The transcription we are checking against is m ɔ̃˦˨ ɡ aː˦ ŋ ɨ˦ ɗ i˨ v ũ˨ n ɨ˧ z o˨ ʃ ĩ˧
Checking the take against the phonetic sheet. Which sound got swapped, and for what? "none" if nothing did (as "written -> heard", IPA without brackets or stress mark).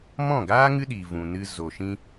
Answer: none